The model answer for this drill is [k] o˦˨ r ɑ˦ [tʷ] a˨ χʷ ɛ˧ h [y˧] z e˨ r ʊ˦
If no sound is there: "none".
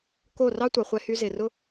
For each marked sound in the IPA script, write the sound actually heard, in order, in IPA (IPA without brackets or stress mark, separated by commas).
k, tʷ, y˧